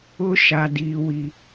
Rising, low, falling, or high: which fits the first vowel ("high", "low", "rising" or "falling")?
high